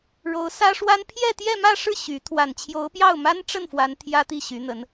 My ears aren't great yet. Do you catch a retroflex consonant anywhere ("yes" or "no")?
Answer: yes